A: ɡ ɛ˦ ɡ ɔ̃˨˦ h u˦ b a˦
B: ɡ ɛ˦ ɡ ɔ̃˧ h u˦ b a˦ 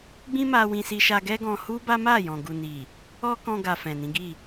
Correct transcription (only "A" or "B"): B